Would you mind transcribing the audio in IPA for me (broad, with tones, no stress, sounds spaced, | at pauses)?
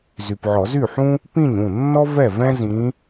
z y˨ p ʕ ɔ˨˩˦ z y˥˩ ħ ũ˥ | p ĩ˥˩ ɲ ũ˥˩ nː ɔ˥ v ɛ˥˩ v ɛ̃˥ z ĩ˧˥